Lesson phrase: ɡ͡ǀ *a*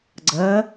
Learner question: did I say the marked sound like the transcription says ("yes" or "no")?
no